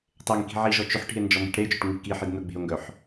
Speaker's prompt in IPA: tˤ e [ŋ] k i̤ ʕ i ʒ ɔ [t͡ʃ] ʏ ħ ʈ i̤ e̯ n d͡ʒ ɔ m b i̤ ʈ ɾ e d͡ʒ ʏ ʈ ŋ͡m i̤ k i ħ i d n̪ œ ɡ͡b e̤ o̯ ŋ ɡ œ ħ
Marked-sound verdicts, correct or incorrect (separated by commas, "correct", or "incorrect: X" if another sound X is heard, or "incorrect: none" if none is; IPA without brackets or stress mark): correct, correct